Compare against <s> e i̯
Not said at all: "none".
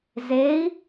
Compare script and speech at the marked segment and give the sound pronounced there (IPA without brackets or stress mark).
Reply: z